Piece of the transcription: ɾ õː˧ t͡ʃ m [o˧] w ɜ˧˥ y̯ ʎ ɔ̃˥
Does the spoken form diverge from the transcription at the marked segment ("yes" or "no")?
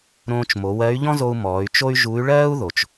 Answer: yes